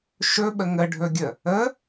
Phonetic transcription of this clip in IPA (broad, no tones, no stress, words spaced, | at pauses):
ʃɵɓə ŋəɖʱɵɡʲə | ə